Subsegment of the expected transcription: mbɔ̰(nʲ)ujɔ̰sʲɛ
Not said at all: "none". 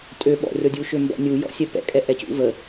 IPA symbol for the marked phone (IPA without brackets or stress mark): nʲ